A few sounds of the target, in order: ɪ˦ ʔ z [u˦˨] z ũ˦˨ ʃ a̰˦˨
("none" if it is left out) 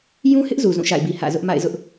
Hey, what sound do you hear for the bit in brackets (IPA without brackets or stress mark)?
u˨